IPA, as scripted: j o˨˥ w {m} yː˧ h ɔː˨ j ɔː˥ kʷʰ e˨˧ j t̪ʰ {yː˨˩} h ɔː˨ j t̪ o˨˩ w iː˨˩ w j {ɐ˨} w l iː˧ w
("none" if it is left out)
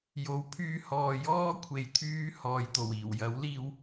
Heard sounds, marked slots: pʰ, yː˧, ɐ˨˥

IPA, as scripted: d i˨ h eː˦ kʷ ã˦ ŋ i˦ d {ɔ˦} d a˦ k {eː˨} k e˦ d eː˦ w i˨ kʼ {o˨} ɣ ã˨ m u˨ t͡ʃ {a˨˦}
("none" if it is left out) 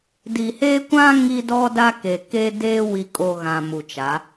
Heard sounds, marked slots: ɔ˦, e˨, o˨, a˨˦

